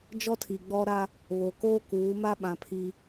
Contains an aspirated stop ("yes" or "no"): yes